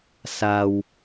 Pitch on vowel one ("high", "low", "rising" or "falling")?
low